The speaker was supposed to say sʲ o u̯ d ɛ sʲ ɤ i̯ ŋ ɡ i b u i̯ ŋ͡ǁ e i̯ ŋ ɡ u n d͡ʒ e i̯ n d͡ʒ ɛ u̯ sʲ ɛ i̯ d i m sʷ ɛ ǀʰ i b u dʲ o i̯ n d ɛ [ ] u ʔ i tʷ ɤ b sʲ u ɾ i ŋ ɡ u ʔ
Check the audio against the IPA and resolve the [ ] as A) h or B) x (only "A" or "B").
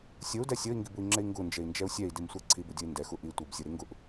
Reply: B